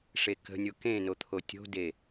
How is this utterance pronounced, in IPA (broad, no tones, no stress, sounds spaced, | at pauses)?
ʂ e k ə̤ nʲ o k ẽ n o t̪ʰ o tʲ o̤ d e